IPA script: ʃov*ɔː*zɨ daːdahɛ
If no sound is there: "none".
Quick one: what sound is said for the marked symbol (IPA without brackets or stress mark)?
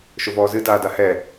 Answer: ɔː